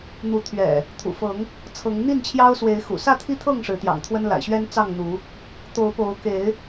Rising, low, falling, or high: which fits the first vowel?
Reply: rising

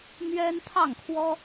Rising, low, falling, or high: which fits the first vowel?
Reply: high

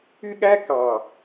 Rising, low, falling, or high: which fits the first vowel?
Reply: high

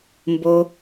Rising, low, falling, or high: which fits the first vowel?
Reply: low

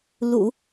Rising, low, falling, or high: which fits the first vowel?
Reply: low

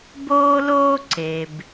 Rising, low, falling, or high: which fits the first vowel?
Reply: high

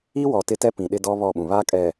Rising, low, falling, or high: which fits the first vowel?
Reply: high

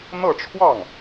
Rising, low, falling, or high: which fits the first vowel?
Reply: falling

